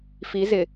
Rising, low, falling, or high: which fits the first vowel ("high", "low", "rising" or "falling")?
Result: rising